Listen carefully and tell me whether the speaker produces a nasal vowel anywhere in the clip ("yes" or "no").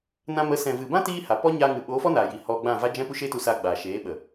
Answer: yes